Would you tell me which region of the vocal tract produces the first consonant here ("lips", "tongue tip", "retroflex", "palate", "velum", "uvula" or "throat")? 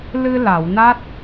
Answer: tongue tip